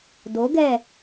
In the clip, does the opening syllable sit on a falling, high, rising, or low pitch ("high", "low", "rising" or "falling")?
rising